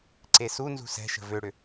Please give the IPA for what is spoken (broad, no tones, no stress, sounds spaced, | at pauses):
ǀ e s u n z ṳ s ɛ̤ ʃ ə̤ v ø ɽ ʏ